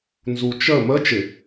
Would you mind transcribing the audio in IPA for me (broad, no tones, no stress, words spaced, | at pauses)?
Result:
nzut͡ʃə mə t͡ʃɪ